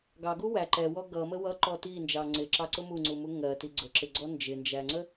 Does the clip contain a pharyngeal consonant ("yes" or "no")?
no